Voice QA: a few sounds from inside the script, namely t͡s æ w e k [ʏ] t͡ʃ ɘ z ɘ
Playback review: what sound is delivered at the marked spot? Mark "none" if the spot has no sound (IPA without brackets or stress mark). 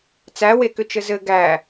ʏ